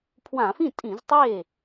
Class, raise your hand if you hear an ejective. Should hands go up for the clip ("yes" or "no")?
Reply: yes